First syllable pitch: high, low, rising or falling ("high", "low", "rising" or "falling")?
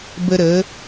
high